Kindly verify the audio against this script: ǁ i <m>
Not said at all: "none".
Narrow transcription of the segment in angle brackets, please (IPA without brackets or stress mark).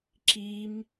m